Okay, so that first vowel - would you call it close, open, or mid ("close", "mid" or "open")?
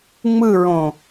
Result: close